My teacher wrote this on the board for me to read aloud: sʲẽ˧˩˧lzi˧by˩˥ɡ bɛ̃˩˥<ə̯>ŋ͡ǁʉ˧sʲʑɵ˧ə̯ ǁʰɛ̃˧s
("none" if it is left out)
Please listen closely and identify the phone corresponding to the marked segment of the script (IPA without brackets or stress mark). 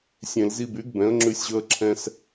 ə̯